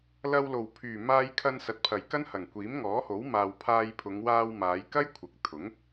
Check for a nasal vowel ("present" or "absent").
absent